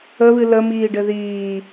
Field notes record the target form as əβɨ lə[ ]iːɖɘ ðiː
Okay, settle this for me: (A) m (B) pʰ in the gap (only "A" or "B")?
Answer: A